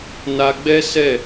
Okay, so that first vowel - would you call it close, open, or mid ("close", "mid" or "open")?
open